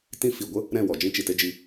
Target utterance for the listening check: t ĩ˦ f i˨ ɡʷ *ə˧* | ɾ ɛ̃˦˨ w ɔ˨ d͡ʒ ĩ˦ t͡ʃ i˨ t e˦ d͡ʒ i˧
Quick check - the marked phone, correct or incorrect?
incorrect